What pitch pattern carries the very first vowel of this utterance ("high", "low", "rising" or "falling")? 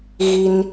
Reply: high